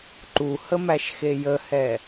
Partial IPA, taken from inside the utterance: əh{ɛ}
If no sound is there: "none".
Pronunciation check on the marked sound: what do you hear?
ɛ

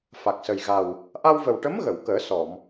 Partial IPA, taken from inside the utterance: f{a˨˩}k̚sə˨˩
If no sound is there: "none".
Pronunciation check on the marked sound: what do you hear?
a˨˩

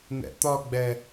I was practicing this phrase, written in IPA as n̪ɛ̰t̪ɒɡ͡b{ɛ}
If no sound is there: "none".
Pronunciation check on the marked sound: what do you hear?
ɛ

